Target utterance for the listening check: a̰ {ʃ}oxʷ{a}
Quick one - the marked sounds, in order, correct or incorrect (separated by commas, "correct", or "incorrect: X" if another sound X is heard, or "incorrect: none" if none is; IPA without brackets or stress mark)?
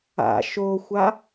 correct, correct